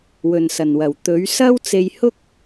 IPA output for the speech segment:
w ɵ˨ n s ɐ˨˩ n w ɐ˨˩ w t̪ ɵ˨˥ ɥ s ɐ˥ w t͡s e˧ j h ʊ˥ k̚

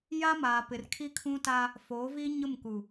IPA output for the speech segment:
j a˦ m aː˨ p ɪ˨ r kʰ i˦ kʰ ũ˦ t a˦ | f oː˨˦ v iː˦ ɲ ʊ˦˨ m k u˨

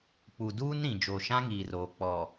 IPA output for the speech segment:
k͡p u˨ d uː˦ n ɾ ĩ˨ d͡ʒ o˨ ʃ ã˦ ŋ iː˨ r oː˨ k͡p ɔ˨

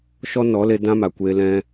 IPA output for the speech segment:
ʃ ɔ˦ n ɔ˨˦ l e˧ d ã˦ m a˨ kʷ eː˧ l ɛ̃˧

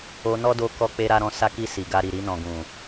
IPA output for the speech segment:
o˧ n ɔ˦ d o˧ k ɔ˧ k͡p e˧ ɾ a˧ ɾ ɔ̃˧ s a˧ k i˧ s i˨ ɡ a˧ ɾ i˨ ɾ i˧ n ɔ̃˨ ɡ ũ˨

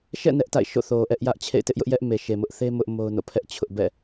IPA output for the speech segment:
ʃ ɛ̰˦˨ n ɛ˦ ʔ t a̰˦˨ ɪ̯ ʃ o̰˦˨ θ o˨ ʔ ɛ˦ ʔ j ä˦ ʔ t͡ɕʰ ḛ˦˨ ɪ̯ t ɪ˦ ʔ j ʊ˦ ʔ j ɛ˦ ʔ m e˨ ʃ e˨ m ʊ˦ ʔ θ e˦ m ʊ˦ ʔ m o˦ ʊ̯ n o̰˦˨ pʰ ɛ˦ ʔ t͡ɕʰ ʊ˦ ʔ b ɛ̰˦˨

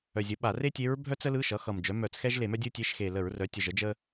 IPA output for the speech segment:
œ˨˩ zʲ ə˩˥ ɓ a˧˩˧ r e˥ tʲ e˧˥ ɹ bʱ œ˥ t͡s ə˧˥ l ɯ˧˥˧ ʃ ʌ˩˥ x ʌ˨˩ m d͡ʒ œ˩˥ m œ˧˩˧ t͡s x ɛ˥ ʒ l e˧˩˧ m œ˥ dʲ ɯ˥ tʲ e˧˥˧ ʃ x e˨˩ l ə˧˩˧ ɹ r œ˩˥ tʲ ə˨˩ ʒ ə˩˥ d͡ʒ ə˥

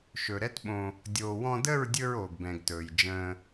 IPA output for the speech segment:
ʃ ɵ˨ ɾ ɛ˦ t ɓ õ˧ | dʲ oː˨ w ɔ̃˧ d ə˦˨ ɹ dʲ ɵ˧ ɹ oː˨ ɡ b ɛ̃˨ ɡ t ɵː˨ j d͡ʒ ə̃ː˧

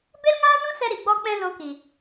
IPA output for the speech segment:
b e˦ l ŋ aː˦ z ũ˦ s ɛ˦ ɾ i˨ ɡ͡b ɔ˦ k͡p ɛ̃˦ l o˧ k i˨

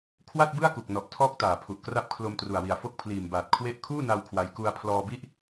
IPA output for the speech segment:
kʰ w a˥˩ t̚ b ɯ˥˩ a̯ k u˨˩ k̚ n ɔ˨˩ ʔ tʰ ɔː˥˩ k̚ t aː˨˩ pʰ u˨˩ ʔ k r a˥˩ p̚ kʰ l o˧ m t r u˨˩ a̯ w i˨˩ a̯ f o˥˩ k̚ pʰ l iː˨˩ m b aː˨˩ t̚ kʰ w e˥˩ ʔ kʰ uː˥˩ n a˧ w kʰ w a˦˥ j k u˧ a̯ pʰ l ɔː˧ b i˥˩ ʔ

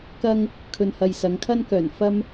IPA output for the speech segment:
k ɐ˥ ŋ | kʰ ɵ˧ n h ɐ˧ j s ɐ˨˧ ŋ kʰ ɐ˥ n k œː˨˩ n f ɐ˥ m

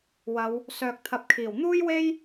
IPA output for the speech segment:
w ɐ˨˧ w | s œː˨ k̚ t̪ʰ ɐ˨˥ p̚ kʰ iː˨˩ w n̪ uː˥ j w e˥ j

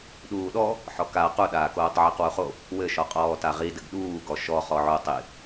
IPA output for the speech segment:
ɗ uː ɗ ɔ | ħ ɔ k a q u ɗ aː k oː tˤ ʕ i q w u χ o | w ɘ ʃ ɔ qʼ ɔː t a ʁ i d ɘ ɡ ɗ uː ɡ ɔ ʃ ɔ χ ɔ ʕ o tˤ i

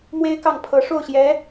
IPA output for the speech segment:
m w e˥ ɪ̯ k ɑ˥˩ ŋ pʰ ɤ˧˥ ʂ o˥˩ ʊ̯ ɕ j ɛ˧˥

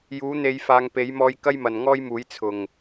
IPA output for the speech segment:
j uː˨˥ n̪ e˨˧ j f aː˨˧ ŋ p e˨˥ j m ɔː˧ j k ɐ˥ j m ɐ˨ n ŋ ɔː˥ j m uː˨˥ j t͡sʰ ʊ˨˩ ŋ

